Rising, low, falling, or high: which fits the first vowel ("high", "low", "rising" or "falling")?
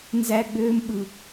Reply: high